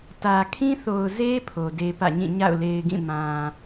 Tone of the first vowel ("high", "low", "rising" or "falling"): low